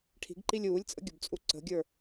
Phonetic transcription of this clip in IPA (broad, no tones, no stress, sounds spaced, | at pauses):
ʈʰ i̤ ɡ ǃ i lʲ uː lʲ t͡sʼ ə̰ ɡʲ u b t͡sʼ u ǀ ə̤ ɡʲ ə˞